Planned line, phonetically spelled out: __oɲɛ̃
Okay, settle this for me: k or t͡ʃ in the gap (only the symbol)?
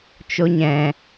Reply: t͡ʃ